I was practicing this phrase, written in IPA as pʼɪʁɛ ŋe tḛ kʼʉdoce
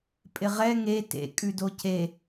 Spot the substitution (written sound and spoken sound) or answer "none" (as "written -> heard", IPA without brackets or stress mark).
none